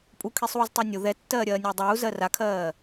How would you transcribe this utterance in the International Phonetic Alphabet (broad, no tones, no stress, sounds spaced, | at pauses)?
pʼ u kʰ i sˤ uː z tˤ ɜ nʲ ʊ ð ɛ tː ɜː ɾʲ ɜː nʲ ʊː dˤ uː z ɜ r a kʰ ɜː